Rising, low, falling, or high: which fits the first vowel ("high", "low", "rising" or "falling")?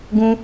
high